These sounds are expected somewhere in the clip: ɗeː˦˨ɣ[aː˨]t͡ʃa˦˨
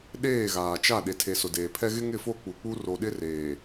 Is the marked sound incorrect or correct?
correct